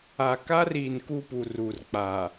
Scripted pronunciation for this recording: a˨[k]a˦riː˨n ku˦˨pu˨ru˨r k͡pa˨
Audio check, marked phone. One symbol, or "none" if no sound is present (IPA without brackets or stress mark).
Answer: k